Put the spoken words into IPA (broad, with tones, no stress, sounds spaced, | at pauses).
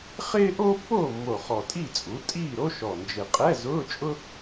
χ ɪː˥ ʔ oː˥ pː oː˥˨ mː o˨˩ χ ɔ˨˩ tʼ i˥˨ t͡sʼ u˩˥ tʼ iː˥˨ ɾ o˥ ʃ ɔ˨˩ n d͡ʒ ɪ˨˩ qʼ ɛ˧˥˧ z ʊː˧˥˧ t͡ʃʼ ʊ˥